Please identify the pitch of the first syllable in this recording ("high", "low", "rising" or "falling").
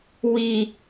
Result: low